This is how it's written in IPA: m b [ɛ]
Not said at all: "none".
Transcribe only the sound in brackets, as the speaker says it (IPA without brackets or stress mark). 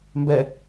ɛ